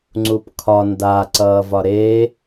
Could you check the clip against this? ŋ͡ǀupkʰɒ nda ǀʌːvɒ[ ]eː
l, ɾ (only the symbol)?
ɾ